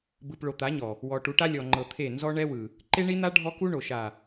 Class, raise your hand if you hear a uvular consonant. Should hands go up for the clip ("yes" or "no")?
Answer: no